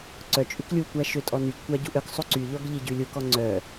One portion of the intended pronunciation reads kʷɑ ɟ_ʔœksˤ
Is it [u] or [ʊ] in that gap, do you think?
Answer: u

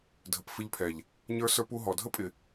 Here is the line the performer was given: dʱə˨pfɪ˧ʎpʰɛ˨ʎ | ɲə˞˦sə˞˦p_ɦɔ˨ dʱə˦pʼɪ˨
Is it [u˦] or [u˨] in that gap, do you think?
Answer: u˦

